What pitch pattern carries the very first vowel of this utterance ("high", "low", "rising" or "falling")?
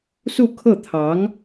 falling